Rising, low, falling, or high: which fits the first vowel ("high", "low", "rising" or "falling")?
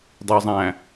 low